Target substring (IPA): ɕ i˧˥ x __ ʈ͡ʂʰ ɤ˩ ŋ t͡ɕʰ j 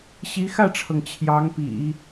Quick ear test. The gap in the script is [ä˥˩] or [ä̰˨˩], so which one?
ä˥˩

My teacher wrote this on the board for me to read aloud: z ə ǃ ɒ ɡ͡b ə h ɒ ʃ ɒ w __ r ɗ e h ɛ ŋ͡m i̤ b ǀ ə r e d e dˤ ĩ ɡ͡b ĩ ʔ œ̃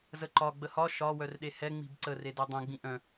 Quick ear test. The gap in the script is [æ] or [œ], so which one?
œ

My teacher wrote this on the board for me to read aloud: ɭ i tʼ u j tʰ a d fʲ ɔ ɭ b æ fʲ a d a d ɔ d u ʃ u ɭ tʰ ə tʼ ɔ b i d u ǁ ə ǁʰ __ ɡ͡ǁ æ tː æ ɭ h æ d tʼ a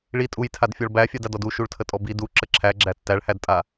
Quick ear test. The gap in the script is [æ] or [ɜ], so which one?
æ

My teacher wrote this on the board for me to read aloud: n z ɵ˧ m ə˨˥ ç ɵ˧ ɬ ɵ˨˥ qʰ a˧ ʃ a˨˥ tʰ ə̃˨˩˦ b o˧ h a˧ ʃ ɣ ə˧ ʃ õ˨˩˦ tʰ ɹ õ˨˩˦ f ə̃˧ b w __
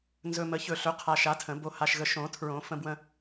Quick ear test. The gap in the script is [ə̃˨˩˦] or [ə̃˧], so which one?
ə̃˧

